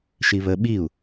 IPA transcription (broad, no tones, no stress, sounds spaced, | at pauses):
ʃ i β ə ɓ i u̯